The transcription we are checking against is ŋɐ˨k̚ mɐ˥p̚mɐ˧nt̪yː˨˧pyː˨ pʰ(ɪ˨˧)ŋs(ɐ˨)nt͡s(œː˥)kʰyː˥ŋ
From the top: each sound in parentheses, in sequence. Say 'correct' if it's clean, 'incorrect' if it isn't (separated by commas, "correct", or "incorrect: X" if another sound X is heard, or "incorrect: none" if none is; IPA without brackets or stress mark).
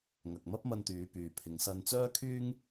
correct, incorrect: ɐ˧, correct